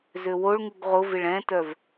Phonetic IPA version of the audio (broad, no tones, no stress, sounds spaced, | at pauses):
z ø w o ɭ ŋ u ɡ ʁ ʊ v ɪ ɭ ɛ̃ t œ v